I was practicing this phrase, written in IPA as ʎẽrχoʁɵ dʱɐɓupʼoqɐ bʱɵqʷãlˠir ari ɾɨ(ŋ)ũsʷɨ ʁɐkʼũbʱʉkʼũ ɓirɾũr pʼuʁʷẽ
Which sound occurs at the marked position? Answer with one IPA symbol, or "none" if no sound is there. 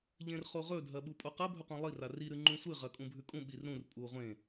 ŋ͡ǃ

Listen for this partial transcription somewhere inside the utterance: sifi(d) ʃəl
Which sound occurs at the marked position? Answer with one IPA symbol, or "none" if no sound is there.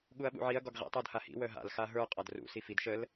d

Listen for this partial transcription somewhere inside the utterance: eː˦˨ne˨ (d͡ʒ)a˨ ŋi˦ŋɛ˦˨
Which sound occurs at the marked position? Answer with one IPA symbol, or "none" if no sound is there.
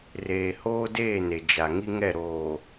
d͡ʒ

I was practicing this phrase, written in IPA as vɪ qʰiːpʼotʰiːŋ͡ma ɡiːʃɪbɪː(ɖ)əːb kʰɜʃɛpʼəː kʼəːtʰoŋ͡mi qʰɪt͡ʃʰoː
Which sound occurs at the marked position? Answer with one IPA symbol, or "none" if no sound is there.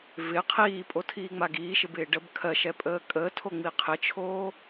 ɖ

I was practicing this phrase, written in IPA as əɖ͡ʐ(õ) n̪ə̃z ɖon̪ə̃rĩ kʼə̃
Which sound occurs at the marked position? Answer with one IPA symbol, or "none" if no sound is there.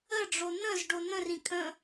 o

